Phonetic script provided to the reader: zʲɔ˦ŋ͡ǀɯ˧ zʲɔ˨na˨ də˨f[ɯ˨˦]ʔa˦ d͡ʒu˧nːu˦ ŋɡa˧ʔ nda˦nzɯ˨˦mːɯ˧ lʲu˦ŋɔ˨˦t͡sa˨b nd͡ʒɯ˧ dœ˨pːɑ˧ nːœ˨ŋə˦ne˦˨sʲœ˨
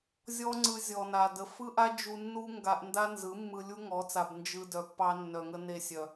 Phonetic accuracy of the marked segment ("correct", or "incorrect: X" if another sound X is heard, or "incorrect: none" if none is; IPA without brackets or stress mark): incorrect: ɯ˦